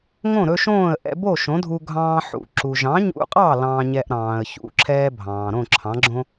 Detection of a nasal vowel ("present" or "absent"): present